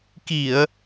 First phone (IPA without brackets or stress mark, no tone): k